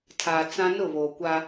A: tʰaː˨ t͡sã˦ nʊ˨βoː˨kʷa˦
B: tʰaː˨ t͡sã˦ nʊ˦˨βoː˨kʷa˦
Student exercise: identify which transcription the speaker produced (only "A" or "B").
B